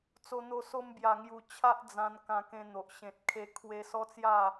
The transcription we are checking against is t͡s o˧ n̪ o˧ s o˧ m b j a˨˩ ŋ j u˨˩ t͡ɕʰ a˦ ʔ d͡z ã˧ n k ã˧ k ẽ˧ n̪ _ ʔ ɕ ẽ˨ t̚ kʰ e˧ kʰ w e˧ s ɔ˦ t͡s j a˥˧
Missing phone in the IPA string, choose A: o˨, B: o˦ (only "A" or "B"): A